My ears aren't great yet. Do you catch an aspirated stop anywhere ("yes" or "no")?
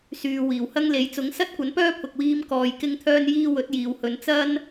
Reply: yes